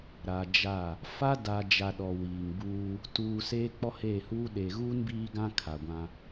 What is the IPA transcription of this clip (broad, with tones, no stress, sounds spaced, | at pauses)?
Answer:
ɾ a˨ d͡ʒ a˦˨ | f a˦ d a˨ d͡ʒ a˨ ɗ ɔ˨ w iː˨ ŋ b uː˦ | t uː˨ s eː˦ k͡p ɔ˦ h eː˦˨ h uː˦ ɗ eː˨ ɣ uː˦ n b iː˦ ɡ ã˦ kʰ a˨ ɡʷ ã˦